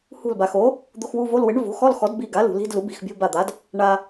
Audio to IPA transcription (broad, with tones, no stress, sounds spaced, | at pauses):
h ṳ˧˩ l b a˩ x o˩˥ | d̪ o˧˥˧ x w u˧˥˧ v o˧˥˧ l w ɪ˩˥ ɳ v o̤˩˥ x ɔ˧˥˧ l x ɔ˩˥ d b i˧˩ ɡ a˩˥ l ṳ˩ l i̤˧˥˧ d l u˩˥ b i̤˧˩ x bʲ o̤˧˥˧ b a˧˩ d̪ a˩˥ d | ɳ a˩